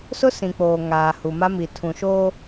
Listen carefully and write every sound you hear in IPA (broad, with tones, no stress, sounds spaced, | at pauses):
s ʊ˦ s ĩ˨ k͡p oː˨ ŋ aː˨ h u˨ m a˦ m i˨ tʰ ũ˨ ʃ oː˦